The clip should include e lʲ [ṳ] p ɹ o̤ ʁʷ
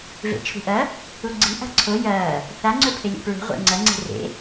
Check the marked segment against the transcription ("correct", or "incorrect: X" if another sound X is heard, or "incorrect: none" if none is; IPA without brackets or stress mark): incorrect: ṵ